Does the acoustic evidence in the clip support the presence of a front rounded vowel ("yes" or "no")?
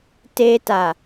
no